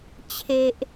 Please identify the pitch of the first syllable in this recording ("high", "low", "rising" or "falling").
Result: low